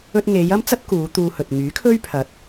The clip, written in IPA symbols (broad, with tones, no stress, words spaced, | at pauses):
ɵ˧t̚ŋe˨˧j ɐ˥mt͡sɐ˥t̚kuː˨˧ t̪uː˧hɵ˨t̚ ŋyː˨˥kʰɵ˥ɥpʰɐ˨˥t̚